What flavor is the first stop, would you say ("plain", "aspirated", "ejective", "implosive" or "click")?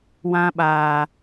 implosive